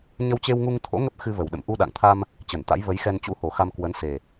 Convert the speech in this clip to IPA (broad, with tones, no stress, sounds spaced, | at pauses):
ɲ ə˧ w t͡ɕ e˧ w ŋ u˧ ŋ t̪ʰ o̰˧˥ ŋ ə˦˥ p̚ x ɨ˧ v ə˨˩ w ɗ ə̰˧˨ m ʔ u˧ ɗ a̰˧˨ ŋ t̪ʰ a˧ m | t͡ɕ ə˧˩ n t̪ a̰˧˥ j v ə˨˦ j x ɛ˧ n t͡ɕ ṵ˧˥ h o˨˩ x a˧ m k w ə˨˦ n s e˨˩